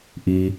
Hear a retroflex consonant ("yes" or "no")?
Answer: no